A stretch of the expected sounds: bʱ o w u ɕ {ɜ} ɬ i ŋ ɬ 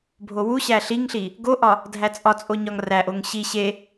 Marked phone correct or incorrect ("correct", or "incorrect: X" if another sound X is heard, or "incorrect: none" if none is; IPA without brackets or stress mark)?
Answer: incorrect: æ